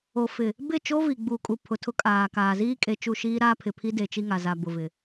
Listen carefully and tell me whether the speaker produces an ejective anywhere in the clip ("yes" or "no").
yes